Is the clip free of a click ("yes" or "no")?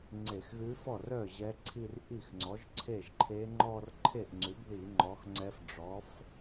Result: no